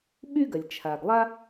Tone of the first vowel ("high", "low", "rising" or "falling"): high